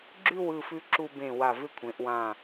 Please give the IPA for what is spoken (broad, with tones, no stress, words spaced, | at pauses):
ɡ͡ǁʉ˥˧w ɯ˥˧fʉ˥ ǁu˧bẽ˧˩ wa˧˩vɪ˥˧kʷʰẽ˩˧ʔ wã˧˩